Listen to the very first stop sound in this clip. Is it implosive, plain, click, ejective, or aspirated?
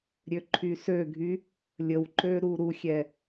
click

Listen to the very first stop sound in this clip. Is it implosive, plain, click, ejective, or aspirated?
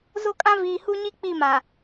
ejective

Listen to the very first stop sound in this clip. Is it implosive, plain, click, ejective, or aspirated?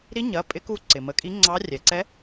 ejective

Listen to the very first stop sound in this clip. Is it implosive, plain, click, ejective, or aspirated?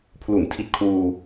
aspirated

